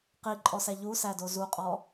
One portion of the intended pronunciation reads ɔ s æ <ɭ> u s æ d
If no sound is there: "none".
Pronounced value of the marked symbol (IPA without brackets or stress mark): ʎ